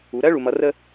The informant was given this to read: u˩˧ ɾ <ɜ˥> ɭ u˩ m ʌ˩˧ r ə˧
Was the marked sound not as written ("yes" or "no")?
no